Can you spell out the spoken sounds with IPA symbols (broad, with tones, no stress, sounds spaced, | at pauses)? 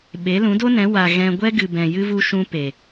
ɓ e˨˦ l ũ˨˦ d o˦ n ɛ̃˨˦ w a˨ ɣ ɛ̃˧ ɡʷ ɛ˦ ɡ ɨ˨ b ɛ̃˨ j ɨ˧ v u˧ ʃ ũ˧ p e˨